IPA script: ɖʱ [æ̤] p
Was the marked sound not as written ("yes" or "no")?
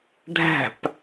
no